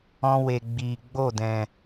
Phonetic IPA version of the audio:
ɔ̃˧ w e˨ ɡ͡b iː˨ ɡ͡b o˦˨ d ɛ̃˨

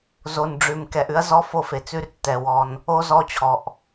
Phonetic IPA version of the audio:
z o˨ n ɖ͡ʐ ʉ˨ m k ɛ˨ ʔ ʉ˦ ɐ̯ z ɔ˦ f o˦ f e˨ t͡s ʉ˦ r tː ɛ˨ w ɔ˦ n | o˦ z ɔ˦ t͡ɕʰ ɔ˨ ʔ

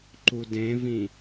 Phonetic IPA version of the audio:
ǃ u d ẽ v ĩ

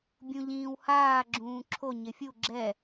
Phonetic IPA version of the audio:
bʲ ũ ʎ ĩː w h aː ɡ͡ǁ ũː ǁʰ o ɲ ɪ fʲ u ɡ͡ǁ ɛ

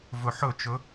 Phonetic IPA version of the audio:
v ɵ ħ ɵ t͡ʃ ɵ

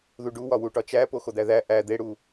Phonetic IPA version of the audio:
ð u ɖ u w ɒ w u ʈ ɒ t͡ʃ æ p o x o d̪ æ ð æ ʔ æ d̪ e ɽ u

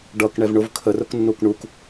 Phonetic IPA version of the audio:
ɖ ʌ k ɳ ɛ v ɳ ʊ v kʰ ə r ʊ k nː u k ɳ u k

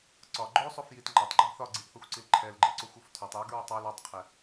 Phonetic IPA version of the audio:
ǀ ɒ ɡ͡ǃ o sˤ o f j i t ŋ͡ǃ a tˤ ɡ͡ǃ e ɡ θ ɒ ɡ͡ǀ i ʔ θ ɔ xʷ ǀ i l ǃʰ ɛ l ɡ͡ǃ e ǀ o xʷ o f tʰ ɔ tˤ j o ɡ ɹ i tˤ o l ɒ tˤ qʰ ɛ

